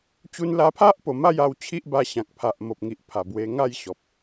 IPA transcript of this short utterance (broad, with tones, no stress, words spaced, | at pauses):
t͡ɕu˧nla˧pʰa˦ʔ po˨˩ma˥˧j a˥˧w t͡ɕʰi˦ʔba˧ɕã˨k̚ pʰa˨ʔmo˨p̚ŋi˨ʔ pʰa˨˩ bwe˧ŋa˥˧jɕɔ˨p̚